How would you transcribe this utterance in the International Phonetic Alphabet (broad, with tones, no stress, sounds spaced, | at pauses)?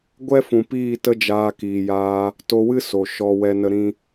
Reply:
ɡʷ ɛ˦ f ũ˨ p iː˦˨ t ə˦ d͡ʒ aː˧ k iː˨ j aː˧ | t o˧ w ɨ˦ s o˨ ʃ ɔ˧ w ɛ˧ n ə˧ ɾ ĩ˦